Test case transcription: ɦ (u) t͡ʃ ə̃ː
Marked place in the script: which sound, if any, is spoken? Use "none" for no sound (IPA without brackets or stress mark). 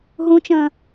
ũ